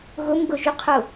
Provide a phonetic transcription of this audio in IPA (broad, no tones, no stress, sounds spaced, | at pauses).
ɣ ʊ m ɡ ʊ ʒ y qʰ ʊ